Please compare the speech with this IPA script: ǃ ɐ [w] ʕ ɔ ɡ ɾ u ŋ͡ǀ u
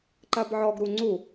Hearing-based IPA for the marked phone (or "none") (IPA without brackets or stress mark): b